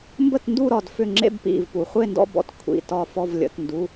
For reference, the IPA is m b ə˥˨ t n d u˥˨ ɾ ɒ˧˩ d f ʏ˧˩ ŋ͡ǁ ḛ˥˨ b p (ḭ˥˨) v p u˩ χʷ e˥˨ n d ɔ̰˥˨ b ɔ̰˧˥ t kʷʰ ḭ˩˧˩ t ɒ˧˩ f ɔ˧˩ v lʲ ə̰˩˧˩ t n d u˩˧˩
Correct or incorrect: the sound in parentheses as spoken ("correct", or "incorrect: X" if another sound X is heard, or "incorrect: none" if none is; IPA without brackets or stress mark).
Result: incorrect: ḭ˧˩